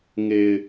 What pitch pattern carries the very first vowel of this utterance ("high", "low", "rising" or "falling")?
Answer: low